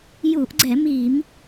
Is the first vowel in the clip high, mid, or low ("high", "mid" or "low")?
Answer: high